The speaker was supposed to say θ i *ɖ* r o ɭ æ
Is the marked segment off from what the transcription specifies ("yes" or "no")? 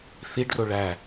no